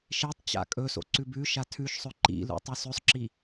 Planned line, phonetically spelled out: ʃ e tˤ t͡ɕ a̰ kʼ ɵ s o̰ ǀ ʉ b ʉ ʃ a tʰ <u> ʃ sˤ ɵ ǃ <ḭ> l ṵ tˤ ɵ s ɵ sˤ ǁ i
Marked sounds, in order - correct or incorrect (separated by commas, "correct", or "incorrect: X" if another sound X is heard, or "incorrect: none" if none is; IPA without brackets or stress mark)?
incorrect: ʉ, correct